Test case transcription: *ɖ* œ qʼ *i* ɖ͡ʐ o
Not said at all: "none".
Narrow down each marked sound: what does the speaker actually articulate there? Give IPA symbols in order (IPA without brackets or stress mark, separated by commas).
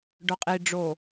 ɖ, i